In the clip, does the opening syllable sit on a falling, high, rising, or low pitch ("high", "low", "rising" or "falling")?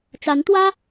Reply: rising